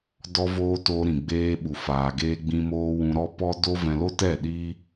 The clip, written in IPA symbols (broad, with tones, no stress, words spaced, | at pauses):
dɔ˧voː˧ to˧ ɾĩ˨ɡ͡beː˧ɓu˨ faː˨ɡeː˧ɡ͡bĩ˧moː˧ wũ˧ɾɔ˦ pɔ˦do˦ vɛ̃˧lo˦tɛ˦˨ ɗiː˦